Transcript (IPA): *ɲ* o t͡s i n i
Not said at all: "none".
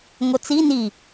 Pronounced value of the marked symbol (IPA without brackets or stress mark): ŋ